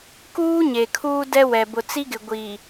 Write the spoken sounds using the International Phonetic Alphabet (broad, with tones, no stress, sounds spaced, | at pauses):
k uː˦ ɲ e˨ kʰ uː˦ d ɛ˦ w ɛ˨ b ʊ˨ t͡s i˦ ɡ ɪ˨ ɡʷ iː˨